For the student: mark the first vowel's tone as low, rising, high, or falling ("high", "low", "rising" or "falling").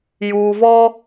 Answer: low